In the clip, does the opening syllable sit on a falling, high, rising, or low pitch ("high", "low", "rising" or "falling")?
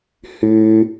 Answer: high